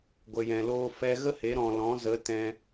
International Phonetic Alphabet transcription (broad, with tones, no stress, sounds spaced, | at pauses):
ɡʷ ə˨ j ɛ̃˨ l oː˧ f ɛ˧ ɣ ə˦ h e˨˦ ɾ ɔ̃˨ l ɔ̃˨˦ z ə˨˦ t ɛ̃˦